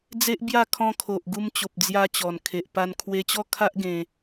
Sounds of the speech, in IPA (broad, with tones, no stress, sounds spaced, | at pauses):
d͡z e˦ ʔ b j a˥˧ kʰ ɔ̃˧ kʰ o˨ ʔ ɡ u˧ m t͡ɕ o˨ p̚ d͡z j a˧ t͡ɕ ɔ˨˩ n kʰ e˨ ʔ p a˧ n kʰ w e˧ t͡ɕ ɔ˥˧ kʰ a˦ ʔ ɡ ẽ˧